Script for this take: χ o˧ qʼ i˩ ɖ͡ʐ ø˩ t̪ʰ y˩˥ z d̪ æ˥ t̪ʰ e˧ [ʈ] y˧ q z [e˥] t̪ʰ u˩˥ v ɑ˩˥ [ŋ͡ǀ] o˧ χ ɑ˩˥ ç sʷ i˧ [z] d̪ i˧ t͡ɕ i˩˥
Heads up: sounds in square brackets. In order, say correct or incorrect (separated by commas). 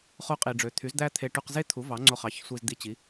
correct, correct, correct, correct